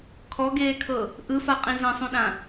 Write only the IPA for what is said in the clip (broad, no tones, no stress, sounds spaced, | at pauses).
kʰ ɔ ɡ eː kʰ ɤ | ʔ ɯ f a qʼ ĩ z ɛ̃ sˤ ũ ɗ ã